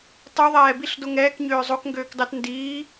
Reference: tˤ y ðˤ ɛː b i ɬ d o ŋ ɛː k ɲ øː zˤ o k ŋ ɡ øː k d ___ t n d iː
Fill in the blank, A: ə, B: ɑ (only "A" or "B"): B